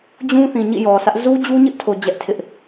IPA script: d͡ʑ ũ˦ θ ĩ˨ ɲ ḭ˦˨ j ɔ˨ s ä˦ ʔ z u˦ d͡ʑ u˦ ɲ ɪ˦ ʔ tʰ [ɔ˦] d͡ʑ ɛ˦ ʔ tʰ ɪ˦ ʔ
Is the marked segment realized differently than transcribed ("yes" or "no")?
yes